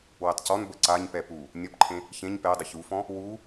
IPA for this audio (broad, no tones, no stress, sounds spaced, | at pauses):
w ɛ tˤ c ɔ n b ə ǀ a ɲ p ɛ p u | nʲ ɔ p ǃʰ ẽ | ç ẽ ɲ p ɛ dˤ ə ç u f ɔ̃ | w u